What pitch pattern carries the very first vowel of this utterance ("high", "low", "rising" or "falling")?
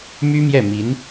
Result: high